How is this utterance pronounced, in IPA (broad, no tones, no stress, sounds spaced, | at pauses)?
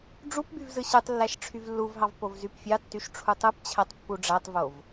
ɖ͡ʐ u p b y v z ɯ ɕ ɯ tˤ lː æ ʃ ʈ͡ʂʰ y v lː u v ɦ ɑ v p o v z y p fʲ ɑ tː y ʃ ʈ͡ʂʰ u tˤ ɯ p t͡ɕʰ æ tˤ pː u ɖ͡ʐ æ tˤ v o v